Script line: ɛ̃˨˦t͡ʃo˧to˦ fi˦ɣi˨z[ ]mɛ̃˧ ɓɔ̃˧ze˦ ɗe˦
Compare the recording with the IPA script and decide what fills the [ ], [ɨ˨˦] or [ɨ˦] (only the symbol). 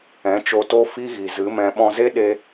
ɨ˨˦